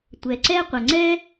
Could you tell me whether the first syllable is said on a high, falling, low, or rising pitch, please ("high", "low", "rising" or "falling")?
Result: low